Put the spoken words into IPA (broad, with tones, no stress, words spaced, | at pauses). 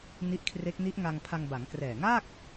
ni˦˥ʔkʰre˦˥k̚ ni˦˥ʔŋa˧ŋpʰa˧ŋ ba˩˦ŋkrɛː˨˩ŋaː˥˩k̚